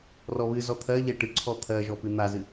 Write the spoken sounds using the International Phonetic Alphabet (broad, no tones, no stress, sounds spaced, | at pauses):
r ɔ β ɨ z ɔ t̪ʰ ɜ ʎ ɛ ʈ ɨ ǀʰ ɔ t̪ʰ ɜ ʒ ɔ p ɨ n̪ a z ɨ